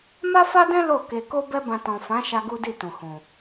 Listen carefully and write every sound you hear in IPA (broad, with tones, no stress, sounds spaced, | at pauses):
m a˦ f a˦ d ɛ̃˦ l o˦˨ k e˧ k o˦ b ɛ˦ b ã˧ t ɔ̃˨ f ã˨˦ ʃ a˧ ɡ u˦ d i˦˨ t ũ˨ h ũ˨